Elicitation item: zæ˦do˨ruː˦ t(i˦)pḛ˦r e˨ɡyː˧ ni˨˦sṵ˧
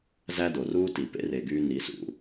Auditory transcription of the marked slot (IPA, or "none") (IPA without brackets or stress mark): i˨